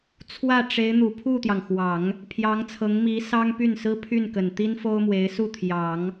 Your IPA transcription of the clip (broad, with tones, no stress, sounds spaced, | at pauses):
t͡sʰ w ä˥˩ ʈ͡ʂ e˧˥ ɪ̯ n̪ u˨˩ pʰ u˥˩ t̪ j ɑ˩ ŋ x w ɑ˨˩˦ ŋ | pʰ j ɑ˧˥ ŋ t͡sʰ ɤ˧˥ ŋ m i˧˥ s ɑ˥ ŋ p y˥˩ n s ɹ̩˥ pʰ y˥˩ n k ə˨˩ n t̪ i˥ n f o˥ ʊ̯ m w e˧˥ ɪ̯ s u˥˩ t̪ʰ j ɑ˨˩˦ ŋ